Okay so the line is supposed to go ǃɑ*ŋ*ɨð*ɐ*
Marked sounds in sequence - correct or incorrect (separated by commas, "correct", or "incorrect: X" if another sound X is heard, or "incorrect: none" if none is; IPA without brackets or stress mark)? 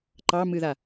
incorrect: m, incorrect: a